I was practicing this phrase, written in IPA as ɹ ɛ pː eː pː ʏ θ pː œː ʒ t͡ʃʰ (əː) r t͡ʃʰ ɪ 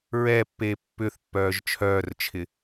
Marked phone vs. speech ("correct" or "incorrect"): incorrect